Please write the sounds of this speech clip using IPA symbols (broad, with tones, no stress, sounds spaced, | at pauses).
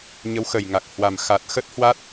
ɲ ə˨˦ w x ə˨˩ j ŋ a˨˩ k̚ h w a˨˩ m x a˨˩ t̚ x ə˦˥ t̚ h w a˦˥ t̚